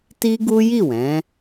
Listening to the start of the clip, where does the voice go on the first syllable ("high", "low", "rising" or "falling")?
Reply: high